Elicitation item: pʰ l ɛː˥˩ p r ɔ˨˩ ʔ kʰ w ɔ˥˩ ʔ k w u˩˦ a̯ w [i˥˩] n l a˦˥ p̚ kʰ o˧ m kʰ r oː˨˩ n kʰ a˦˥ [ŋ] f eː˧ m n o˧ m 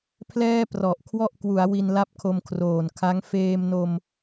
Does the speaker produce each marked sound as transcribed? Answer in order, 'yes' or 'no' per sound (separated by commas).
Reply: no, yes